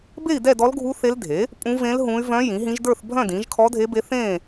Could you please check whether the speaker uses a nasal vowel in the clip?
yes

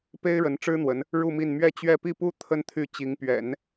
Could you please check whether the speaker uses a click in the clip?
no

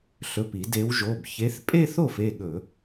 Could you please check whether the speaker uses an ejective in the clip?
yes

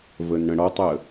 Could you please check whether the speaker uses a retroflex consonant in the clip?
yes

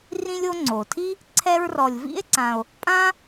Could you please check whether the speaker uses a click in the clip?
yes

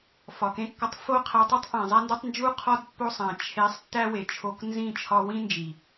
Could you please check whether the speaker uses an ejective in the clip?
no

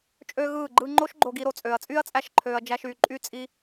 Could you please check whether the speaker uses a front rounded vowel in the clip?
yes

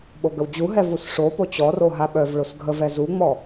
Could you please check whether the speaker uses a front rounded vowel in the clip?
yes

